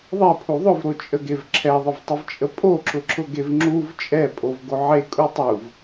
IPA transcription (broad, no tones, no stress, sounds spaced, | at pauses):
ðˤ e pʰ u ðˤ ʊ v ɾ o t͡ʃʼ ə ɡ e v ǁʰ ɛ ðˤ ə v tˤ ə v t͡ʃʼ ə pʼ o ǁ ʊ ǁ ʊ ɡ e v ŋ͡ǁ u v t͡ʃʼ ɛ pʼ o v ɡ o ʕ e kʼ u tˤ u v